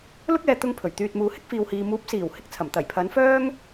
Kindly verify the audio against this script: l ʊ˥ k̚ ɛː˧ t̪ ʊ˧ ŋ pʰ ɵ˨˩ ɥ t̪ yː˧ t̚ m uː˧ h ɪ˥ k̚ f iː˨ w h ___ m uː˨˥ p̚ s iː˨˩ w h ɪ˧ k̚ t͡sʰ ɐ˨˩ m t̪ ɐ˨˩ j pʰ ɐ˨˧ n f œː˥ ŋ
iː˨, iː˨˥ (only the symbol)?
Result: iː˨